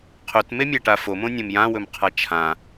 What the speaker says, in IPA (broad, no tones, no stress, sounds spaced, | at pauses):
qʰ ɵ t m e mʲ a ʈ a f o m õ nʲ õ m j ã w ɵ m qʰ a t͡ʃʰ ã